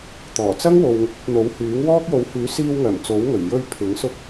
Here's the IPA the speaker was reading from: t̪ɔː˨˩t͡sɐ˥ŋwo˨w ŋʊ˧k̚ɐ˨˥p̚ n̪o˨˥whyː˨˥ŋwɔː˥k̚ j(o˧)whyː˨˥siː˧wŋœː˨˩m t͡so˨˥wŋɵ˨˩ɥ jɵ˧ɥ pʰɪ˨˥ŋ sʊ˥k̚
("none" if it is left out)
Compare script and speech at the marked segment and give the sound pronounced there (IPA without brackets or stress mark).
o˨˥